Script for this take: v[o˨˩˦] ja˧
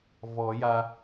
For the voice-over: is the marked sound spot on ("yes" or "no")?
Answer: no